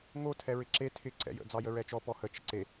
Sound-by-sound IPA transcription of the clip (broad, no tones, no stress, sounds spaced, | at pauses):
ŋ o tʰ ɛ ɹ ɪ ǁ e tʰ ɪ ǀ ɛ̰ j ə̰ d͡z ɑ j ə ɹ ɛ t͡ʃ ɔ p ɔ h ə t͡ʃ ə̰ ǀ e